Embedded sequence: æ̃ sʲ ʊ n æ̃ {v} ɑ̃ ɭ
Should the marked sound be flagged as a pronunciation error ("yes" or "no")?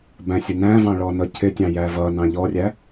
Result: no